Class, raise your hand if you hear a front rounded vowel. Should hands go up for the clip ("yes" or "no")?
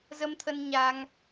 no